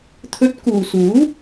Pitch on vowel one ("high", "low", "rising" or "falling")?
rising